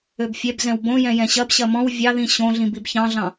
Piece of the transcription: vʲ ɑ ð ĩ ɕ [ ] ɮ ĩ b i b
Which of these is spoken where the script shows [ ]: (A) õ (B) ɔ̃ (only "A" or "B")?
A